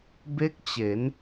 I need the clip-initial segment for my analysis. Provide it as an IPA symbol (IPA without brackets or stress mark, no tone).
b